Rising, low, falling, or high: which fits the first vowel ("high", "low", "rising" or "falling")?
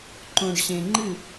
low